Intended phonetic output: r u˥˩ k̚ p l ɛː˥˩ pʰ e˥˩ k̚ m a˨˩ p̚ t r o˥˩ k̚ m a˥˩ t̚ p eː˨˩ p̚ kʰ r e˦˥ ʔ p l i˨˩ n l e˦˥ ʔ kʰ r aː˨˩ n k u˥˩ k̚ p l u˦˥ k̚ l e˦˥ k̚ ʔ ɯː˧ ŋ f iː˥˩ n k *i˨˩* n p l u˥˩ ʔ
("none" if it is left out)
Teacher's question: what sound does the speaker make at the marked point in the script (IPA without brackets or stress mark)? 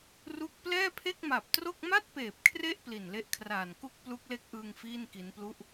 i˦˥